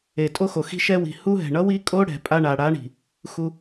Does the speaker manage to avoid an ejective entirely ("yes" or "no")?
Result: no